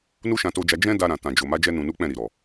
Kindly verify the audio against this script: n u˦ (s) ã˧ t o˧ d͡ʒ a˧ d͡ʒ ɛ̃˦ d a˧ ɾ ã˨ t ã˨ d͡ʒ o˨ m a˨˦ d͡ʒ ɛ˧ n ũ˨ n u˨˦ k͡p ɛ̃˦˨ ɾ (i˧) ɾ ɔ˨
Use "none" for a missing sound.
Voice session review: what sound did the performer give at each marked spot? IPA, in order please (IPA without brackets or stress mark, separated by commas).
ʃ, i˨